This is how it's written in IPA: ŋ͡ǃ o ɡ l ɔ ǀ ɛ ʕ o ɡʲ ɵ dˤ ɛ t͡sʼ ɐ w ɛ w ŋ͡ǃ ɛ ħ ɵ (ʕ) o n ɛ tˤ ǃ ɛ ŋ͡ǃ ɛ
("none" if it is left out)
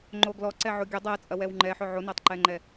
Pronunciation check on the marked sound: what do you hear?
ʕ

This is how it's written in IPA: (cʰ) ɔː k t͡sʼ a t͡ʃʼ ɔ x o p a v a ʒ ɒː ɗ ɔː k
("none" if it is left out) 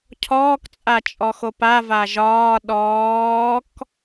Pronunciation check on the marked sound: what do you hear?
cʰ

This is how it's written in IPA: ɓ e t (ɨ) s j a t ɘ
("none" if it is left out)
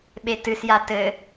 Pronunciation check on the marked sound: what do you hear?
ɨ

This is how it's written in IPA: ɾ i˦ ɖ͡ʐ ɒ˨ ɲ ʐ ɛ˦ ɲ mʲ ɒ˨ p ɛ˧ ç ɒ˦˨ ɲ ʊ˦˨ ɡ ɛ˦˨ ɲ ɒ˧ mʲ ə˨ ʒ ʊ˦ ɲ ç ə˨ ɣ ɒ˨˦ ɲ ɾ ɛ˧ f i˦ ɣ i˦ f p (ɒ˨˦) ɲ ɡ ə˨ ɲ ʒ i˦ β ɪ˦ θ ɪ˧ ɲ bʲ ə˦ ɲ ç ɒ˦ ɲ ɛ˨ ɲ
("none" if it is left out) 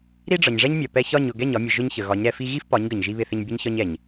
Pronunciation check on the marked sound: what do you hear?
ɒ˨˦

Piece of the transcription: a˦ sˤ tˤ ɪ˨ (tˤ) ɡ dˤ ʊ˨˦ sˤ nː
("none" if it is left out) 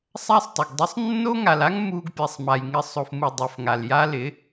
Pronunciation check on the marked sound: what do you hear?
none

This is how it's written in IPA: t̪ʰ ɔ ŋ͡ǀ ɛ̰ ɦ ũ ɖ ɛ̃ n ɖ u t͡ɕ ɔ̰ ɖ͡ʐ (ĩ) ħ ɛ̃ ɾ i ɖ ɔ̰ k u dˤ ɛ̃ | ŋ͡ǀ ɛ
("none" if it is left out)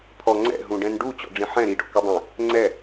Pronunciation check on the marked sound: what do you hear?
ĩ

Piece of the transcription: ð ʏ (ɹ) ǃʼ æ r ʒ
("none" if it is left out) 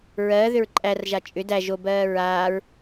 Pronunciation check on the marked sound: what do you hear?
ɹ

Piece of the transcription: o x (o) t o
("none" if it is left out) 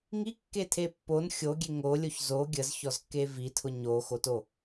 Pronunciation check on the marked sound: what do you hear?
o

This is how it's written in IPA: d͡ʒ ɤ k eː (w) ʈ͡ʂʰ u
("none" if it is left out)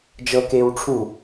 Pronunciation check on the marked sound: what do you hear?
w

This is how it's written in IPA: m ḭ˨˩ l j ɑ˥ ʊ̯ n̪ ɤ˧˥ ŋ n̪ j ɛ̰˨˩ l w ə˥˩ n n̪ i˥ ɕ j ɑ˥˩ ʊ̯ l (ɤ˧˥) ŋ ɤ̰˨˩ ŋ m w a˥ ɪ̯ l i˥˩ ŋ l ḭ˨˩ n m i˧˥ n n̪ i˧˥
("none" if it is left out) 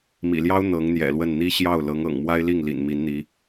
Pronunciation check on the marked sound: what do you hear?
ɤ˧˥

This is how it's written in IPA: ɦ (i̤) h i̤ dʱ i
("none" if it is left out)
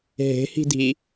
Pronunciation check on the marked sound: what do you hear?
e̤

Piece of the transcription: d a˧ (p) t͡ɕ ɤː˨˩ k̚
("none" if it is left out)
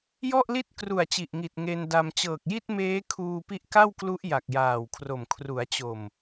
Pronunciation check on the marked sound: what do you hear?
m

